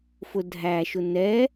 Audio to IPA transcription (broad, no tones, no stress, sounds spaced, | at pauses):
f ʊ dʱ æ ʃ ʊ n ɛ